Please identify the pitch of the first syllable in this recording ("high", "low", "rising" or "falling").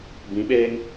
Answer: rising